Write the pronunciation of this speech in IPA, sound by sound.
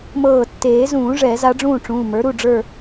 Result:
m ɤː˧˩ tː eː˨˩˦ z ũː˨˩˦ ʐ ɛ˨˩˦ z a˧˥ ɖ͡ʐ ũː˥˨ ʈ͡ʂ ũː˩˧˩ m ə˞˩˥ ɾ u˩˧˩ ɖ͡ʐ ə˞˥˨

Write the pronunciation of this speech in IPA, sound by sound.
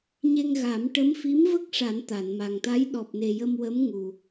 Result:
ɲ e˧ ŋ ɣ a˨˩˦ m ʈ ə˧˥ m f i˧˥ m v ə˦˥ k̚ ʂ a˨˩˦ n t̪ a˨˩˨ n m a˨˩ ŋ t̪ a˧˥ j ɗ ɔ˨˩ p̚ n e˨˩ j ə˧ m w ə˧˥ m ŋ u˨˩

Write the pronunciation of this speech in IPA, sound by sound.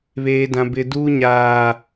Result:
β eː˦ d ã˦ b ɪ˦ d uː˦ ɲ aː˦

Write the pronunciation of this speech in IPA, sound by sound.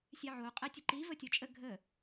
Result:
sʲ ɛ ʕ o qʼ ɛ tʲ ʊ ǃ i v ə tʲ o t͡ʃʼ ə ɡʱ ə

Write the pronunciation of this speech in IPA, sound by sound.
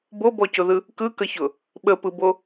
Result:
b o b ɔ c ʊ ð ɯ | k ɯ k ə ç ʊ | ɓ ə p ɯ b o

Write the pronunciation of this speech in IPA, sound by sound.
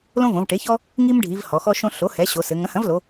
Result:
l õ˦ v õ˩˧ v ʈ e˩˥ ç ɔ˦ | ŋ i˦ m ɖʱ i˩˧ v h ɔ˩˧ x ɔ˦ ʃ õ˦ ɬ o˩˥ h ɛ˩˥ ɕ o˩˧ s ɘ˩˧ ŋ ɐ̃˩˥ h ɐ̃˩˥ v l o˩˧

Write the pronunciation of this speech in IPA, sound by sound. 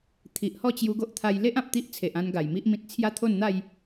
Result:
t̪ʰ i˨ ʔ h ɔ˥˧ t͡ɕ j u˧ ɡ o˦ ʔ t̪ʰ a˧ j l e˦ ʔ ã˨ p̚ t̪ i˦ ʔ t͡sʰ e˨ ʔ ã˧ n ɡ a˨˩ j m i˦ ʔ m ĩ˦ t̚ t͡sʰ j a˦ t̪ʰ o˥˧ n n̪ a˥˧ j

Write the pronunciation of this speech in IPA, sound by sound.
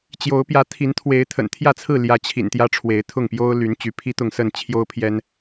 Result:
t͡ɕ j o˨˦ ʊ̯ p j ä˨˦ t̪ʰ i˨˦ n t̪ʰ w e˨˦ ɪ̯ t̪ʰ ə̰˨˩ n t̪ʰ j ä˥˨ t͡sʰ ɹ̩˥˨ l j ä˨˦ t͡ɕʰ ḭ˨˩ n t̪ j ä˦ ʈ͡ʂʰ w e˨˦ ɪ̯ t̪ʰ ʊ˥˨ ŋ p j o˦ ʊ̯ l y˨˦ n t͡ɕ y˨˦ pʰ i˦ t̪ ʊ˥˨ ŋ s ə˥˨ n t͡ɕʰ j o˦ ʊ̯ pʰ j ɛ˦ n

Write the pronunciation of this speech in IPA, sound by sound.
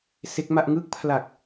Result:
s e˦˥ k̚ m a˥˩ ʔ ŋ ɯ˦˥ k̚ pʰ l a˨˩ k̚

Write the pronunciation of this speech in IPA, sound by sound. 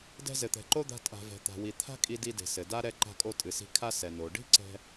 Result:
d ɛ̤˧ z ɘ˩ t̪ ɛ̤˩ ǃ o˥ d̪ a̤˧ tʼ a̤˩ v ɛ̤˩ t̪ a̤˩ w i˩ t̪ʰ a̤˥ kʼ i˧ d i˧ d e̤˩ s ɘ˩ d a˥ ɾ ɛ˧ ǃ a̤˧ kʼ o˧ tʼ ɨ˩ s i̤˧ kʰ a˥ s ɛ˩ n o˩ ɖ i̤˥ ǀ ɛ̤˧

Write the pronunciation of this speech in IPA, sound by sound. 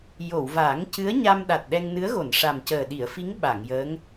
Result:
j o˨˩˨ w v aː˨˩˦ ŋ c ɨ˧˥ ə̯ ɲ a˧ m ɗ a˨˩ t̚ ɗ ɛ˧ ŋ n ɨ˧˥ ə̯ ɣ o˨˩˨ n ʂ a˨˩ m c əː˨˩ ɗ i˨˩˨ ə̯ f i˧˥ ŋ ɓ a˨˩˨ ŋ j əː˧˥ ŋ

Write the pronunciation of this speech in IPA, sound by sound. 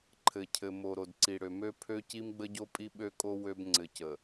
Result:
ǃʰ ɘ˨ cʰ ɘ˨ m o˨ ɾ o˨ d ǀ i˨ ɽ ø˨ m ø˦ pʰ ø˦ c i˦ m ɡ͡b ə˦ ɟ o˦ pʼ i˦ ɓ ø˦ kʼ o˦ w ø˦ b ŋ͡ǀ ɘ˨ c ə˨

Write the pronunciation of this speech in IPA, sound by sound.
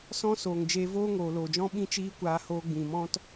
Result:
s ɔ̃˦ s oː˨ ŋ d͡ʒ eː˧ v oː˦ ŋ oː˨ l oː˨ d͡ʒ ɔ̃˦ ɓ ĩ˦ t͡ʃ iː˦ kʷ aː˧ h oː˧ ɡ͡b ĩ˨ m ɔ̃˦ t

